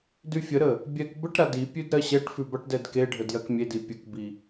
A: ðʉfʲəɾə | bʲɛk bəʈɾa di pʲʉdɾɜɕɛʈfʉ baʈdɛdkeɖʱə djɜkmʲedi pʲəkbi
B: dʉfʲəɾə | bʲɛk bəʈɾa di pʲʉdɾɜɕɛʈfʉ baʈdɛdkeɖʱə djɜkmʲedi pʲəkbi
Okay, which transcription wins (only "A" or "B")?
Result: B